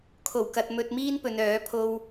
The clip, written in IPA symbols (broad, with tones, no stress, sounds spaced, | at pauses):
kʰ o˨˩ w k ɐ˨ t̚ m ɵ˨ t̚ m iː˥ n p ɵ˨ n œː˨˥ pʰ o˧ w